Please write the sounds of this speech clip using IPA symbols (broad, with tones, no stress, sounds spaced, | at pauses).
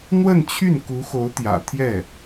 n̪ w ə˥˧ n t͡ɕʰ y˥˩ n k u˧˥ x o˧˥ ʊ̯ t̪ j ä̰˨˩ t̪ʰ j ɛ˥˩